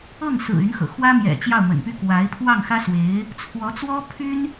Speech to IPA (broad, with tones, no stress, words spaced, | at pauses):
ɤ˥˩ŋ sɹ̩˨˩ y˧˥nxɤ̰˨˩ xwä˥mjɛ̰˨˩ t͡ɕjɑ˥˩ʊ̯mə̰˨˩npy˥ kwa˧˥ɪ̯ pʰwɑ˥˩ŋxä˥swe˧˥ɪ̯ | t͡sʰwɔ˧˥t͡swɔ˥pʰy˥n